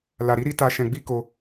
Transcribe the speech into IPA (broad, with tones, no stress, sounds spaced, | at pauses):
l a˨ ɾ i˧ ɾ i˦ t a˧ ʃ ɛ̃˧ ɡ͡b i˦ k o˧